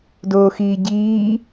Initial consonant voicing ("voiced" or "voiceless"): voiced